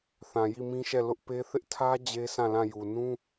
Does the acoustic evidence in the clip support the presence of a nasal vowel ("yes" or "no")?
yes